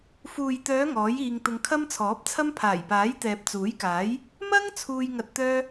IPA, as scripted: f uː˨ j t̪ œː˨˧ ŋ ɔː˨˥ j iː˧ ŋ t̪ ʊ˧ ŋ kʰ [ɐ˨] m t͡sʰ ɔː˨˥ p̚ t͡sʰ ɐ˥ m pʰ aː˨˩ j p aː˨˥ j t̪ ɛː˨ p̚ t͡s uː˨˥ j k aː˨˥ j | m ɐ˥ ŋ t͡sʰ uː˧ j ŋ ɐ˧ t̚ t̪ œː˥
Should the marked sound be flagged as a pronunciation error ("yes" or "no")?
yes